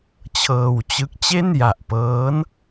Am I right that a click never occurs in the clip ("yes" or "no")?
yes